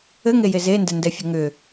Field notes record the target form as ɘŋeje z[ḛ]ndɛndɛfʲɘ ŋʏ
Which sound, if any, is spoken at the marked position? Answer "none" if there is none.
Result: e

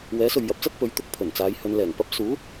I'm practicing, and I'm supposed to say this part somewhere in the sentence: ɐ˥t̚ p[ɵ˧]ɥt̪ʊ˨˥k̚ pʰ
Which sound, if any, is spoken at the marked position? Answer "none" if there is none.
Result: ɵ˨˥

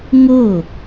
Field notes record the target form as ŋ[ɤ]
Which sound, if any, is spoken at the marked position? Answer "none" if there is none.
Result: ɤ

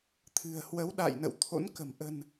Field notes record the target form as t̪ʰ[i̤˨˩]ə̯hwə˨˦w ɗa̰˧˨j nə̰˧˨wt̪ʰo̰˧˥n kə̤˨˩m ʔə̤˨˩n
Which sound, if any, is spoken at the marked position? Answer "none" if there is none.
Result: ɨ̤˨˩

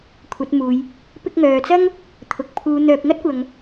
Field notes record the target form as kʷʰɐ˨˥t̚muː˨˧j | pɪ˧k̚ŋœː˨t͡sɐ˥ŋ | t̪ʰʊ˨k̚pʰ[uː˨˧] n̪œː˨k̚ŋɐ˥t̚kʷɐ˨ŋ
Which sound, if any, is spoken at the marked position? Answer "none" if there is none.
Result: uː˨˧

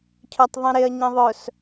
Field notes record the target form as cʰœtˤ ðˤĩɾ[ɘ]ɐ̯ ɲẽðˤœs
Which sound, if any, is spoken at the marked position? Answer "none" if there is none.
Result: e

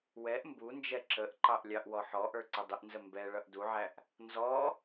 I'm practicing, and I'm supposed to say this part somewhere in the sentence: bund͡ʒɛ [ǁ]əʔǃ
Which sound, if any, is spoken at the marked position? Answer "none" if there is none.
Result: ǁ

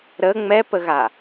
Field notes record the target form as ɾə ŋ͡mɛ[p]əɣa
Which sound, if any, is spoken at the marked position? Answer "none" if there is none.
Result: p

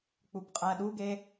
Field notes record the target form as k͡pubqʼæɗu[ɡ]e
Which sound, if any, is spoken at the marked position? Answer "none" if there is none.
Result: ɡ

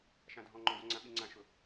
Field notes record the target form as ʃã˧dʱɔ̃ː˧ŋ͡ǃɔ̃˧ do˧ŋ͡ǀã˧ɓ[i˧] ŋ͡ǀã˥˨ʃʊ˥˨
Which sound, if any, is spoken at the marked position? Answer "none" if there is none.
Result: i˧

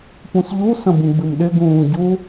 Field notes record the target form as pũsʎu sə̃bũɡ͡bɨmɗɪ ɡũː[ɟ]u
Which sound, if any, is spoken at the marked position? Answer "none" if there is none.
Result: ɟ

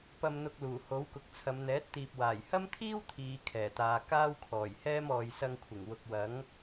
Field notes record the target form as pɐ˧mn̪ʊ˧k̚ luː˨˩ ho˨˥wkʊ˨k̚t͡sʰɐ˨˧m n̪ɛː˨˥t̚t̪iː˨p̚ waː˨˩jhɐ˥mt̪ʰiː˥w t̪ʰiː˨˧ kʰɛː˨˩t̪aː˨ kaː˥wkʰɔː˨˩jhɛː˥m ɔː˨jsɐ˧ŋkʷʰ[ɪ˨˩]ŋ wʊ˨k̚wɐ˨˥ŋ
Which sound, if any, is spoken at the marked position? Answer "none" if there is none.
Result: ɪ˨˩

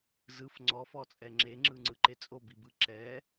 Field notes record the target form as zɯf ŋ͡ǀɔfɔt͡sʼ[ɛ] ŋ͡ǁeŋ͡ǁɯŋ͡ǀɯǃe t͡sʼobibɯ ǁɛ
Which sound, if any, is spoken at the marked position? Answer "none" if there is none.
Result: ɛ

